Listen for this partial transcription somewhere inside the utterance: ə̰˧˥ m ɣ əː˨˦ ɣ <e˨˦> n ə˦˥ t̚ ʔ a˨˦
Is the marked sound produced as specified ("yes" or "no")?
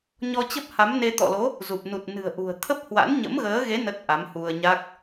yes